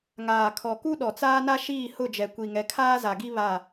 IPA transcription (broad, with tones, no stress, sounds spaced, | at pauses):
ŋ aː˨ kʰ ɔ˨ k u˦ ɗ ɔ˨ t͡s aː˦ n a˦ ʃ iː˦˨ h ʊ˦˨ d͡ʒ ɛ˨ kʷ i˨ ŋ ɛ˨ kʰ aː˦ z a˨ ɡ i˦ β a˦˨